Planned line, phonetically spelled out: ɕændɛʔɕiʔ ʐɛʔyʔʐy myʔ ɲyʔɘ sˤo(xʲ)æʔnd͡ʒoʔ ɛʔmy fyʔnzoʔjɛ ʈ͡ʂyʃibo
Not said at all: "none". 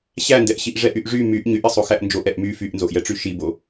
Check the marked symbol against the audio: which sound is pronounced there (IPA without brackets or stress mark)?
x